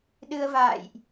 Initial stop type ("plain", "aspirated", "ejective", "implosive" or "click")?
implosive